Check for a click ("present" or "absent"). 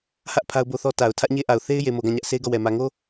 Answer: absent